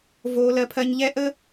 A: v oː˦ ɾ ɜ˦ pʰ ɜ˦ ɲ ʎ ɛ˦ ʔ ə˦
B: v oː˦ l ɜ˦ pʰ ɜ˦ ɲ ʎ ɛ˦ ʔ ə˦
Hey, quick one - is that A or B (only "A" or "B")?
B